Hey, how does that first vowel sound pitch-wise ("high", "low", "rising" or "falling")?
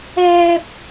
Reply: high